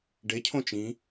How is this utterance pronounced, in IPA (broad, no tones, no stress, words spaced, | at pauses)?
ɖecʰõ t͡ʃĩ